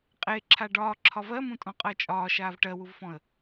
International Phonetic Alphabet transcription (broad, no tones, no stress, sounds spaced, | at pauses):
qʼ e ǁʰ a ɖ ɒː ǁʰ ɒ v ɜ m ũ tʼ ɔ̃ qʼ ɜ t͡ʃʼ ɒː ʃ aː v ʈ ɜ w u v f ɔ̃ ə̯